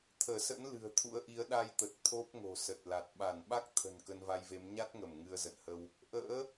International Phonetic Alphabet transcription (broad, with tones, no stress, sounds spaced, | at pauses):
t̪ʰ əː˧˩ s ə̰˧˥ n l ɨ̤˨˩ ə̯ t̪ʰ ṵ˧˥ ə̯ ʔ i˨˦ ə̯ ɗ a˧ j t̪ ə˨˩ t̚ t̪ʰ o˦˥ p̚ ŋ o̤˨˩ s ə˨˩ t̚ l a˨˩ t̚ ɓ a˧˩ n ɓ a˦˥ k̚ t̪ʰ ə̤˨˩ n k ə˧ n v a˧ j v e˨˦ m ɲ a˦˥ t̚ ŋ ə˧˩ m ŋ ɨ˧ ə̯ z ə̰˧˨ n h ə˧ w | ʔ ə̰ː˧˥